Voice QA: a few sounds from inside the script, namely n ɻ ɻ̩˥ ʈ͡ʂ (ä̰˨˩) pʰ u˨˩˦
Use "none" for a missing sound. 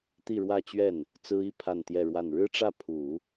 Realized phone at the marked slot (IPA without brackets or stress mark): ä˥˩